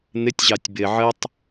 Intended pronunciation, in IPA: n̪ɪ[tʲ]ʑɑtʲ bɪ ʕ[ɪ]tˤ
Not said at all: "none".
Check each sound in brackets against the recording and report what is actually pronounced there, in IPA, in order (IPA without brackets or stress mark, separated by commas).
tʲ, ə